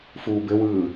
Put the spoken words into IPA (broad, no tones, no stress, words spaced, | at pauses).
fuːbɘwɯː